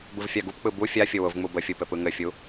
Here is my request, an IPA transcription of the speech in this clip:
bɯvfʲaɡupk͡pɯ bu fʲafʲʊ wʊvŋ͡mu bəfʲu pɘpɯŋɘfʲu

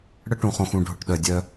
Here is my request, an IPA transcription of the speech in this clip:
ɽə˦ʈũ˨χõ˨xũ˨ ɖʱʊ˨ʈ ɗœ˨dʲœ˦

